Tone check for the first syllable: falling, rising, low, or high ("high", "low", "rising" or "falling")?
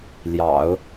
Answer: low